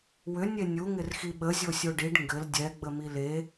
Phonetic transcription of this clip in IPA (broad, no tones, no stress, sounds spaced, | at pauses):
w ʏ nʲ e nʲ u ŋ ɪ r x i ɓ ə zʲ o sʲ o ɖ i ɖ ŋ ɡ ɘ l dʲ ɛ ɡ͡b ə m i l e